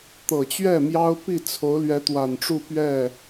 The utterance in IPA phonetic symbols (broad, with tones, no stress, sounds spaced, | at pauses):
t̪ ɤ˨˩ t͡ɕ ɥ ɛ˥˩ m j ɑ˥ ʊ̯ p i˥˩ t͡sʰ o˧˥ ʊ̯ l ɥ ɛ˧˥ t̪ w a˨˩ n ʈ͡ʂ u˥˧ p ɥ ɛ˥˩